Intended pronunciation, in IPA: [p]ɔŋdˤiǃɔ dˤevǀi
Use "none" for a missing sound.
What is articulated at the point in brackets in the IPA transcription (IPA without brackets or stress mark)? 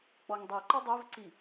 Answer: k͡p